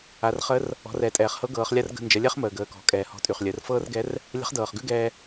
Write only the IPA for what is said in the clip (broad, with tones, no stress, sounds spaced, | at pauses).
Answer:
a˩˧ r χ ə˧˥ r | ɔ̤˩˧ r ɛː˩ tʼ ɛː˩ χ h ɤ˧˥ ɡ ɤː˩˧ χ lʲ a˥ r ɡ ə̤˧ n d͡ʒ ə˩˧ lʲ ɛ˥ χ m əː˩ ɡ əː˩˧ k ɔ̤˩˧ kʼ ɛː˩ h ɔ̤˧ tʼ y˩ χ lʲ əː˩˧ r f ɤː˥ r ɡ ɛ˧˥ r | lʲ ə̤˧˥ χ d ɤː˩ χ ɡ ʉ˥ ɡ ɛː˧